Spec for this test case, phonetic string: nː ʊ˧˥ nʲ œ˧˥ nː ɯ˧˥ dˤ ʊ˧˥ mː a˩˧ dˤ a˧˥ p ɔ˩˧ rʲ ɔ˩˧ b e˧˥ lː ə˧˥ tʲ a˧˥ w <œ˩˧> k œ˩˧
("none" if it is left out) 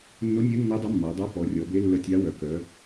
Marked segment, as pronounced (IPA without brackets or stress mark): œ˩˧